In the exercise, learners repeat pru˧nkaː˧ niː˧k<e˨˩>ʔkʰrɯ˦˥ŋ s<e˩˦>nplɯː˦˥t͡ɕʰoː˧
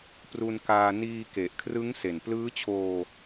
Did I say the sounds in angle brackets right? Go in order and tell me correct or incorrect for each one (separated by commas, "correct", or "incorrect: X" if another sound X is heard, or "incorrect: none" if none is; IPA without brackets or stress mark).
correct, incorrect: e˨˩